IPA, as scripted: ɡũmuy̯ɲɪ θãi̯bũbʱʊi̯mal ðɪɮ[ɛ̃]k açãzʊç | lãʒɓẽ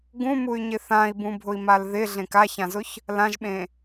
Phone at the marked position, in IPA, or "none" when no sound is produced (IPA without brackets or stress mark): ẽ